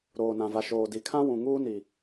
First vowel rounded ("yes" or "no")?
yes